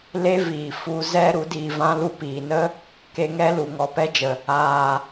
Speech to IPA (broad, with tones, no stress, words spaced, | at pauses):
le˦viː˨ fu˧zɛ˦ ɾu˨˦diː˧vã˦ lu˧piː˨nə˦ | ke˧ŋɛ˦lu˨ ŋɔ˨pɛ˦d͡ʒə˨ | aː˨